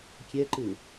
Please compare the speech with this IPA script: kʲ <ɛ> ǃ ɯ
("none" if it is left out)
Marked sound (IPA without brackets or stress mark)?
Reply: ɛ